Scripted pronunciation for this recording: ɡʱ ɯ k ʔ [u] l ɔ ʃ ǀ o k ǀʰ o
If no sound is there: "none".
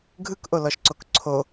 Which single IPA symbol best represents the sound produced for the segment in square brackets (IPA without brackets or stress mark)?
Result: o